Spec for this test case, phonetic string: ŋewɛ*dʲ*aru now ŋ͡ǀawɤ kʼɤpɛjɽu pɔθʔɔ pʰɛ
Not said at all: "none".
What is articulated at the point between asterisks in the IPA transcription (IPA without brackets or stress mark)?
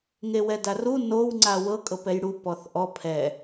d